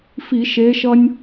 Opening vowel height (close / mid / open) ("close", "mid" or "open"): close